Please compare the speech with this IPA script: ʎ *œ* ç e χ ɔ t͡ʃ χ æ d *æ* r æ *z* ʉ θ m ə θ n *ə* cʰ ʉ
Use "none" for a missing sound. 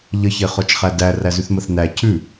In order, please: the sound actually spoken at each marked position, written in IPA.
ə, æ, z, æ

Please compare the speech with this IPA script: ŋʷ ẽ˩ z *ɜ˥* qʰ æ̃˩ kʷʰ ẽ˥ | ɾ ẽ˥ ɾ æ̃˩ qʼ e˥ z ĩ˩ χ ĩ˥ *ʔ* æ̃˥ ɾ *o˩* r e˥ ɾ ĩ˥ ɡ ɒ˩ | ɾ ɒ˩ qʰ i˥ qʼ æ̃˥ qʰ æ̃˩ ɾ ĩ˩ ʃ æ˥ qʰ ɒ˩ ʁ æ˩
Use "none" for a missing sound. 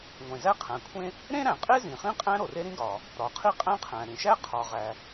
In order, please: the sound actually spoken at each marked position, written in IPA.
æ˥, qʼ, o˩

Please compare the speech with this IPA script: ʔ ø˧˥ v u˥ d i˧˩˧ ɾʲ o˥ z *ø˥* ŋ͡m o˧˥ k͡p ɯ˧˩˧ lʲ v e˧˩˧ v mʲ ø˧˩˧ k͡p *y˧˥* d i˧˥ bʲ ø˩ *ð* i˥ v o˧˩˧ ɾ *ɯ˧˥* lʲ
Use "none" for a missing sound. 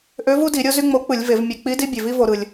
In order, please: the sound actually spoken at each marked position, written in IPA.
y˥, i˧˥, v, ɯ˩

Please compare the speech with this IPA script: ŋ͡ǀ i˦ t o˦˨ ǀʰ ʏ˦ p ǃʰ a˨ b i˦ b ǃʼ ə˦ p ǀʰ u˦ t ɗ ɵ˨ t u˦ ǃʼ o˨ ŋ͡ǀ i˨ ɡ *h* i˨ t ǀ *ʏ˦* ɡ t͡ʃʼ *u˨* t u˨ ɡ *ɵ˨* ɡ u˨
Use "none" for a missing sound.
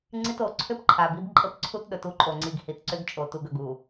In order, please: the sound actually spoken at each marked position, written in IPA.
h, ʏ˦, o˨, ɵ˨

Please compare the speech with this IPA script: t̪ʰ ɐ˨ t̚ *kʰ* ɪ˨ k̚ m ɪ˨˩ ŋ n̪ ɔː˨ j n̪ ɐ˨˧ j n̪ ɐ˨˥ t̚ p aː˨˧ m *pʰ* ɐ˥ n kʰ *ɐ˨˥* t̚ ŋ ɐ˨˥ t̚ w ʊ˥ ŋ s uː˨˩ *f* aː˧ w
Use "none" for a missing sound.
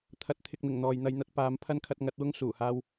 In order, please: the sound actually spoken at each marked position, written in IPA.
t̪ʰ, pʰ, ɐ˧, h

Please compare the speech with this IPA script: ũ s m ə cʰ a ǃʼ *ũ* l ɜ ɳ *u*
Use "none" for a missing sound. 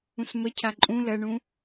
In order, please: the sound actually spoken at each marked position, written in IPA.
ũ, ũ

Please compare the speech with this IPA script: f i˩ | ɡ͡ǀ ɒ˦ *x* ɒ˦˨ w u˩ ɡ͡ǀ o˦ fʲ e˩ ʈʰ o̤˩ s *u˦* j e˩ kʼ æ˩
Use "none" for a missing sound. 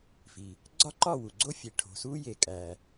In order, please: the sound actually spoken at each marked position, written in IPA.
ǃ, u˦

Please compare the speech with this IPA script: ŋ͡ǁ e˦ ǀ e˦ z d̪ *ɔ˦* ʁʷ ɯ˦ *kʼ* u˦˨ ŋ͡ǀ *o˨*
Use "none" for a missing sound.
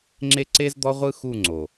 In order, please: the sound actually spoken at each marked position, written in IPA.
ɔ˦, x, o˨

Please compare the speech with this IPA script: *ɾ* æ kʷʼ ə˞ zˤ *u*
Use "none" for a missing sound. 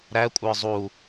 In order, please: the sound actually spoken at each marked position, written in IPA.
ɾ, u

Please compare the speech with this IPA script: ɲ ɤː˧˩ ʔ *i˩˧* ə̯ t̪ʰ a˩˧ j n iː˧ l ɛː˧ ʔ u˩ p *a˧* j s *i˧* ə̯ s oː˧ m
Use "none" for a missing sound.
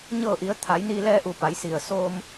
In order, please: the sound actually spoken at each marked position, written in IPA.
i˩˧, a˩˧, i˩

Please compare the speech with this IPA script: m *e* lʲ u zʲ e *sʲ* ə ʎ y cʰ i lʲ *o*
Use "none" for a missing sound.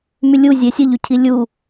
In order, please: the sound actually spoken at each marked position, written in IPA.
y, sʲ, u

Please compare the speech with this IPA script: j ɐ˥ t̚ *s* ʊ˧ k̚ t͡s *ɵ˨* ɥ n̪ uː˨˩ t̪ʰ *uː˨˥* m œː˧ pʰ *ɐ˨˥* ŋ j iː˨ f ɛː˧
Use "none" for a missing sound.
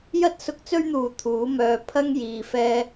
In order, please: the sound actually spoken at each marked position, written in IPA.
s, ɵ˥, uː˨˥, ɐ˥

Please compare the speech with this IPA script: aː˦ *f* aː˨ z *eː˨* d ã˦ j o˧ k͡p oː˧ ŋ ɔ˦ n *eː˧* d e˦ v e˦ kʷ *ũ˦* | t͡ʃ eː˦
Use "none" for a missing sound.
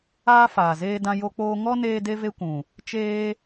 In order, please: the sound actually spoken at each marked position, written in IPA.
f, eː˦, eː˧, ũ˨

